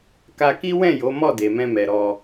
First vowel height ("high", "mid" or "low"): low